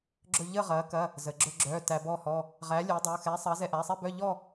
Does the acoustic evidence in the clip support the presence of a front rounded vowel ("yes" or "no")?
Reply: yes